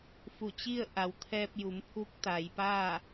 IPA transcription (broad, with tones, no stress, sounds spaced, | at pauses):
f u˧˩ t͡ɕ i˥˨ ə̯ ʔ a˩ w t̪ʰ ɛː˧ p̚ j u˩˧ m pʰ u˧˥ k̚ t̪ a˩˧ j p a˥˨